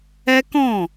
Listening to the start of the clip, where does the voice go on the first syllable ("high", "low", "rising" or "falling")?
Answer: high